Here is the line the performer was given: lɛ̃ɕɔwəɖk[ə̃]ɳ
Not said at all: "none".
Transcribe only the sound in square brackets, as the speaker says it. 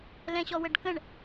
ə̃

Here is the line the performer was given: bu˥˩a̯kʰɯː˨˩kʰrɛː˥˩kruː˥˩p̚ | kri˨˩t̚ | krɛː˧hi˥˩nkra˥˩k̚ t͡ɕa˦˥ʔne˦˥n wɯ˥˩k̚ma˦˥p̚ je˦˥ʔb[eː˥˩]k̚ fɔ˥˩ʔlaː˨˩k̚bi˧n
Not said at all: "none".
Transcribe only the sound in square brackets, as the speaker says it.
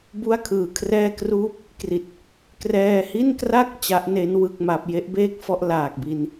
eː˥˩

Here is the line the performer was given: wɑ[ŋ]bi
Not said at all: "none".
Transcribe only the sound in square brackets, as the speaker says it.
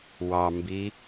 m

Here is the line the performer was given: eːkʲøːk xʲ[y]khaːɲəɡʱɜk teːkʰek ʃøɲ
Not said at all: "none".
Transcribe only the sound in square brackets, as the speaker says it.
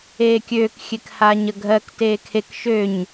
e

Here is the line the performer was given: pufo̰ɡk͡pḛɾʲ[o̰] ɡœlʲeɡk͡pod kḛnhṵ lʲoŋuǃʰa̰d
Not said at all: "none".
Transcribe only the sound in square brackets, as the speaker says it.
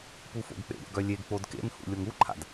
o̰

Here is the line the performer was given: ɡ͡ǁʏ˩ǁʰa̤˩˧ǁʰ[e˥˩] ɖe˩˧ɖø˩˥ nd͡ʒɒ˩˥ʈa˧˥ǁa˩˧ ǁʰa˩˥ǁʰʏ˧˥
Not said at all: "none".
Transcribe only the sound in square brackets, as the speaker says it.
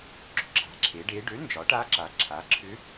e˩˧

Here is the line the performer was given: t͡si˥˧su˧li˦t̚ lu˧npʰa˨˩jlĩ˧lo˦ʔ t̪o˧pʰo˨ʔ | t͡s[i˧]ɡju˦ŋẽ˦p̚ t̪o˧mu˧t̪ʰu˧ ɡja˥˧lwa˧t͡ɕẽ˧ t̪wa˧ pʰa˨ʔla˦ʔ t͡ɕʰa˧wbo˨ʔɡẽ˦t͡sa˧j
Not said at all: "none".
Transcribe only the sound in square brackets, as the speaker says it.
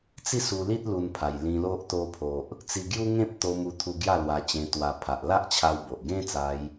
i˧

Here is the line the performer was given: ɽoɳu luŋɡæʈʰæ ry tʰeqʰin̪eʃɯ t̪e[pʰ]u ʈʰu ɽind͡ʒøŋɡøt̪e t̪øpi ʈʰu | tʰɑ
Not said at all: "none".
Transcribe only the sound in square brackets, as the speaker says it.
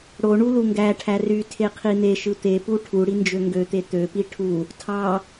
p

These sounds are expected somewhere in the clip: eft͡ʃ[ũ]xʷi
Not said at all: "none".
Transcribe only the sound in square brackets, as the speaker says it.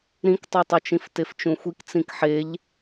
ũ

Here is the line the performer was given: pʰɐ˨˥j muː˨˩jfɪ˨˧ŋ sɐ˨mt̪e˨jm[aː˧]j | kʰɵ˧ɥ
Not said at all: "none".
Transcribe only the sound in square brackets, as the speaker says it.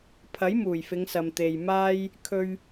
aː˥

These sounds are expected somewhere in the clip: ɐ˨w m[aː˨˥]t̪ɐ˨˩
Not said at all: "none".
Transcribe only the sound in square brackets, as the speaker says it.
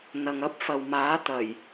aː˨˥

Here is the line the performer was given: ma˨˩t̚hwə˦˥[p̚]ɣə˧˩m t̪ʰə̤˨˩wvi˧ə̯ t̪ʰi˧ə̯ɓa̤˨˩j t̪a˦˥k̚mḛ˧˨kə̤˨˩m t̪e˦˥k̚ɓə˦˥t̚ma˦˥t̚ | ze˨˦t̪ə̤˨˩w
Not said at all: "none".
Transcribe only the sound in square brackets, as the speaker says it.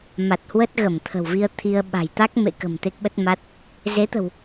t̚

